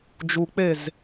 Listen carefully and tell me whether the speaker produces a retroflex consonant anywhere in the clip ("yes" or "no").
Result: no